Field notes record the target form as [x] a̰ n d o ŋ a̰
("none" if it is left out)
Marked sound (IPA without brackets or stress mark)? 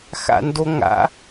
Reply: x